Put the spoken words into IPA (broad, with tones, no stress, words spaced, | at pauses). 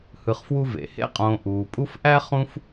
hɯ˨χfwu˦vḛ˩ hḛ˥qʼõː˨ ʔuː˩pʼu˦f ʔæ˥χũ˦f